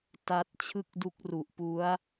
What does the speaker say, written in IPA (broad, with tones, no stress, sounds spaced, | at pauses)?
t a˦˥ t̚ t͡ɕʰ ɯ˥˩ k̚ d u˦˥ k̚ r u˨˩ ʔ p u˦˥ a̯